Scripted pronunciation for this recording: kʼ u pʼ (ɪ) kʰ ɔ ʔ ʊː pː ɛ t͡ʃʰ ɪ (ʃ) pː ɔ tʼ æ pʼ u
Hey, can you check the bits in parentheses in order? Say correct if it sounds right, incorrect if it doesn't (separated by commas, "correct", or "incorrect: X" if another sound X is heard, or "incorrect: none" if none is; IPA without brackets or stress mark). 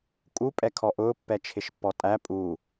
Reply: incorrect: ɛ, correct